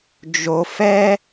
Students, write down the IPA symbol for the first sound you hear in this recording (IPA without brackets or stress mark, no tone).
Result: d͡ʒ